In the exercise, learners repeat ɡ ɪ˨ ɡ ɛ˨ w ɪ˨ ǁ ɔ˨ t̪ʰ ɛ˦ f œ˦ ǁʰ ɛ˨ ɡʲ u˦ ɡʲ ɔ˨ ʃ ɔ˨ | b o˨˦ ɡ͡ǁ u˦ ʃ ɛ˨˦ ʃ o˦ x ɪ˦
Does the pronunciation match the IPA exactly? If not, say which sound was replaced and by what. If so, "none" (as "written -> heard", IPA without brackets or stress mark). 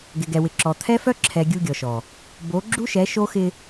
none